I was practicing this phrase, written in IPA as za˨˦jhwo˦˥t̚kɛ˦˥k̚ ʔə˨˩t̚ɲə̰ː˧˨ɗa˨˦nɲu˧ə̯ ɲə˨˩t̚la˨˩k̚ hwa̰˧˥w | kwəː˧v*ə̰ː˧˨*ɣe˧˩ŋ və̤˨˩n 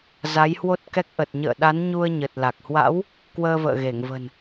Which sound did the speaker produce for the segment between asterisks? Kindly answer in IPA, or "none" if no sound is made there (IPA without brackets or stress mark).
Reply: ə̰ː˧˨